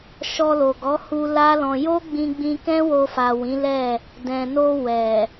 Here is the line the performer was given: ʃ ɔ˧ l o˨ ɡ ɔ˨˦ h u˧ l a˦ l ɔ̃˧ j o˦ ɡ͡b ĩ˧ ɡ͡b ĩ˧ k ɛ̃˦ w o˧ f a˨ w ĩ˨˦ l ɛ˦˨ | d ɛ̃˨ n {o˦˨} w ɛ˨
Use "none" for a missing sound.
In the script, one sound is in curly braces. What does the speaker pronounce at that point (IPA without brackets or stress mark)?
o˧